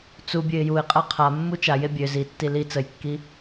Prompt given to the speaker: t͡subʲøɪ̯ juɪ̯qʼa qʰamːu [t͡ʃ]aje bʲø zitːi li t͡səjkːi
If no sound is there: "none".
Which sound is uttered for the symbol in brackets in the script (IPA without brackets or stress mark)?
t͡ʃ